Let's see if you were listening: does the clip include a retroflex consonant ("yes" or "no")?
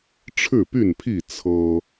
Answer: yes